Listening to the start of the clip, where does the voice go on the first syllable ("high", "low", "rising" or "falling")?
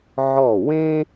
falling